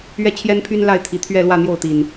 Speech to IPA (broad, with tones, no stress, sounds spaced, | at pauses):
ɥ ɛ˥˨ t͡ɕʰ j ɛ˦ n pʰ y˦ n l a˥˨ ɪ̯ t̪ʰ i˨˩ t̪ʰ ɥ ɛ˥˨ l w ä˥˨ n̪ j o˥˨ ʊ̯ t̪ i˨˩ n